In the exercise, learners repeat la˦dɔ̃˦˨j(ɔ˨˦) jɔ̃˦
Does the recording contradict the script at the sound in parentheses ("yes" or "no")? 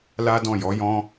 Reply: no